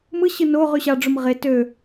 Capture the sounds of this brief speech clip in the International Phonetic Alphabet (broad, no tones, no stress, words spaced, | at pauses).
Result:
mɯɕɯ no ʁyɕɑɖ͡ʐom ʁe tø